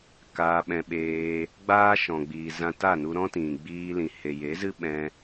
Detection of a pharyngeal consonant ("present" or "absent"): absent